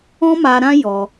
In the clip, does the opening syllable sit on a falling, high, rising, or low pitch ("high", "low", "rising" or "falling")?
high